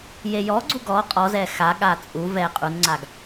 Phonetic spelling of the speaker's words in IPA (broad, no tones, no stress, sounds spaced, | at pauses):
j e j ɔ ɡ͡ǀ u ɡ ɔ qʼ ɔ z ɛ x a ɠ a t͡sʼ u v ɛ qʼ u n ŋ͡ǀ a ɡ